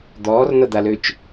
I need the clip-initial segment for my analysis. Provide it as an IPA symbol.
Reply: d̪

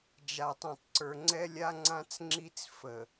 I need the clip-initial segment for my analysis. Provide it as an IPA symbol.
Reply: d͡ʒ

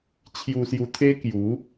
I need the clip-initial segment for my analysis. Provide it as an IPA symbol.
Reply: t͡ɕʰ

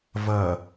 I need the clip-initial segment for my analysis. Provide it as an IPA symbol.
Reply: v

